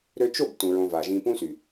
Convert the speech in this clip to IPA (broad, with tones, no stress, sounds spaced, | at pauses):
ɾ ø˧ t͡ʃ o˦˨ b t ũ˧ ɹ õ˧ v a˨ ʒ ĩ˧ p ũ˦ s y˨